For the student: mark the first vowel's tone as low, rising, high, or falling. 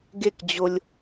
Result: falling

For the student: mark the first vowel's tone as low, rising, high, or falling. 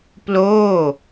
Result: falling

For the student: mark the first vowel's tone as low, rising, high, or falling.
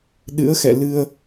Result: rising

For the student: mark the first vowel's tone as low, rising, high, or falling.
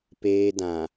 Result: high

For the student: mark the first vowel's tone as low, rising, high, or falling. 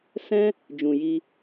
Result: high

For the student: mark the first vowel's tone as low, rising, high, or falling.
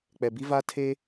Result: low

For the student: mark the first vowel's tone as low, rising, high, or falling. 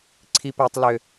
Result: high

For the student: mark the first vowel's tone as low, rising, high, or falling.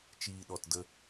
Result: low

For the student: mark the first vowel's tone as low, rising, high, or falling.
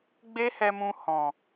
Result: high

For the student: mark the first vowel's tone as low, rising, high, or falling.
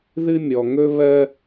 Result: high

